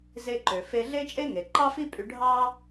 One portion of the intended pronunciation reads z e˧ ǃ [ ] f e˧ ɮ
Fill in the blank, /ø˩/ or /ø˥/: ø˩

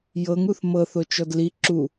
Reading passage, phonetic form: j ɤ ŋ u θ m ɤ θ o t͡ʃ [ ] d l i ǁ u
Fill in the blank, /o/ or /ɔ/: ɔ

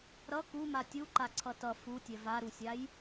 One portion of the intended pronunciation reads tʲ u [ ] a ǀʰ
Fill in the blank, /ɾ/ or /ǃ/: ǃ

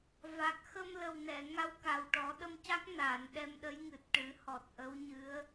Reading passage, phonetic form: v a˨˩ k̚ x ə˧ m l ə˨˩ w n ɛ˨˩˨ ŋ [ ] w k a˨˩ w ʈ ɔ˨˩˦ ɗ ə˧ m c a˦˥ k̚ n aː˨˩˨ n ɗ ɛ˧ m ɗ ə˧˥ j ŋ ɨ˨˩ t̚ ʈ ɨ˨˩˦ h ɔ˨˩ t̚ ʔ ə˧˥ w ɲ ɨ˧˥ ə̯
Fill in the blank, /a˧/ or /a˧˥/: a˧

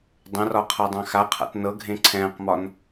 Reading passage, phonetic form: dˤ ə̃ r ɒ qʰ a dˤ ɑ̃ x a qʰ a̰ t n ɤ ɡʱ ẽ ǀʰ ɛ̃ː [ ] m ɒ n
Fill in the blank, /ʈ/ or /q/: q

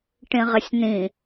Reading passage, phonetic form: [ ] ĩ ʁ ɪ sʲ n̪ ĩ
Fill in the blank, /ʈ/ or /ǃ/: ʈ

